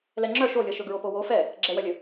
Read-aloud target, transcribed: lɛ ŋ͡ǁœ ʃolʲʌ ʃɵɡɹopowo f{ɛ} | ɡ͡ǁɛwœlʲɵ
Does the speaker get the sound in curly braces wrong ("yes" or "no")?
no